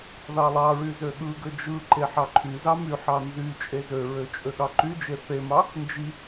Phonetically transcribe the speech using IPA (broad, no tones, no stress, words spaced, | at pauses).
ðɑlˠɑɹy zøɠɯɡø d͡ʒɯǃe ħɑǃʰyzɑ myħɑ nzy t͡ʃʼezøɹø t͡ʃʼøɠɑǃyd͡ʒe θemɑ | nd͡ʒi